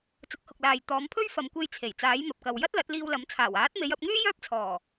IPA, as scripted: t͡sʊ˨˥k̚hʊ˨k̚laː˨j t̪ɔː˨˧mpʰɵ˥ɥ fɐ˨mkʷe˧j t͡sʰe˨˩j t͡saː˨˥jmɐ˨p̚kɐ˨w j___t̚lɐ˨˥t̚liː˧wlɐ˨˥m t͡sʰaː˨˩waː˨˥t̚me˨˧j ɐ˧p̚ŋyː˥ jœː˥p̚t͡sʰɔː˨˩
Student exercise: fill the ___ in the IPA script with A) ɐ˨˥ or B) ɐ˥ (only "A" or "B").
B